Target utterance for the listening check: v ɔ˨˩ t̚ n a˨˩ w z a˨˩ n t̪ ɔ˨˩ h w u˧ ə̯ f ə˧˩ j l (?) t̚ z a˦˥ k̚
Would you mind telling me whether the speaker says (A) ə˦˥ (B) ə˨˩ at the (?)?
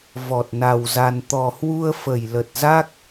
B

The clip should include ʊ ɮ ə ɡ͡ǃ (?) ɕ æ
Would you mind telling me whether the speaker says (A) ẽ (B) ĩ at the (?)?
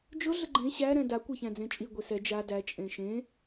A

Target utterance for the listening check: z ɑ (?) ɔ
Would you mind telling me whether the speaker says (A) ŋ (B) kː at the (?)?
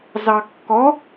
B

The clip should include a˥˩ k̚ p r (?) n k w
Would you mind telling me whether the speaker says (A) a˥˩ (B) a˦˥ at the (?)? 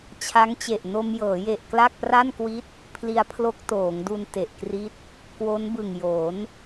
A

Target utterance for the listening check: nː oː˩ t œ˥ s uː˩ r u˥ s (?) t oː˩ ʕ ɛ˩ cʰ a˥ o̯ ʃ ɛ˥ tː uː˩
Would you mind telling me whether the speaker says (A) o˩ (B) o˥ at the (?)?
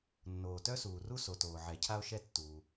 A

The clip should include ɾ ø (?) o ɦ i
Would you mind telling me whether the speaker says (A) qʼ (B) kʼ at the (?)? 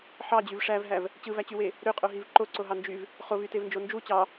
A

